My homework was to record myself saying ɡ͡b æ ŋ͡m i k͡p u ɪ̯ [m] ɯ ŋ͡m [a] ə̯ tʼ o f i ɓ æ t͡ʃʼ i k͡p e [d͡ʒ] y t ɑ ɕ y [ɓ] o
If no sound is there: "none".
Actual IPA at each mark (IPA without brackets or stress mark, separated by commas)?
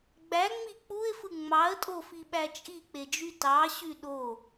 f, ɑ, d͡ʒ, ɗ